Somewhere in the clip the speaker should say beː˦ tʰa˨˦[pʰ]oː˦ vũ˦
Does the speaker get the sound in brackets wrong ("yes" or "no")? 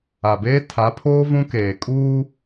no